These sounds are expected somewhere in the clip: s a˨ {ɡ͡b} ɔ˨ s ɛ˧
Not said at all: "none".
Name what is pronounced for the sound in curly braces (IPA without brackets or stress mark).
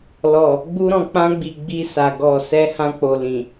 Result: ɡ